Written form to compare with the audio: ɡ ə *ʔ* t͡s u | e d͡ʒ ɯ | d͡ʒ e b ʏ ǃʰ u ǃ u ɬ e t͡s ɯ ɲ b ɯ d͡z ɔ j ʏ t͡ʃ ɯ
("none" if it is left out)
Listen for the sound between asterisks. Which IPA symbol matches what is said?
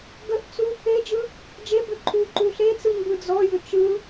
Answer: ʔ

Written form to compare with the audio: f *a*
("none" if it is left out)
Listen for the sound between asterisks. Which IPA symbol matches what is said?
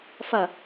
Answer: ʌ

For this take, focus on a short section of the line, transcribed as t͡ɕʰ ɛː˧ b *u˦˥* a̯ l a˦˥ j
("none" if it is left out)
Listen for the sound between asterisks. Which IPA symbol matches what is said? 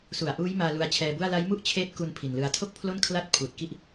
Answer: u˥˩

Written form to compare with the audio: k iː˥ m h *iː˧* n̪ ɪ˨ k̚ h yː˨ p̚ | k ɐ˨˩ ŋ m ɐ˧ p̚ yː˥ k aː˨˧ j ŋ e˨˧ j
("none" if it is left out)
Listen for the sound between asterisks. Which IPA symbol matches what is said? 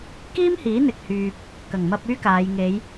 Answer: iː˨˥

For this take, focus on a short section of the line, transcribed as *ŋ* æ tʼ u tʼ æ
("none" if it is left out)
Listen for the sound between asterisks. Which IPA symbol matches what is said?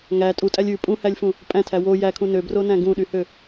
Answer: ŋ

